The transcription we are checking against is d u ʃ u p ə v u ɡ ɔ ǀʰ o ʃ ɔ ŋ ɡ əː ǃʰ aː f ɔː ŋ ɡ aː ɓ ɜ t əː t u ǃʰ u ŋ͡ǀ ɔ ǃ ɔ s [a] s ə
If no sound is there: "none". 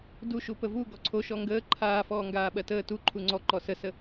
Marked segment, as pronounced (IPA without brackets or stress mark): ə